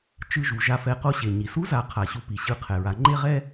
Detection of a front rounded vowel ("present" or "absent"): absent